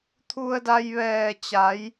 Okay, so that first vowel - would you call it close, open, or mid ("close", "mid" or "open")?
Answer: close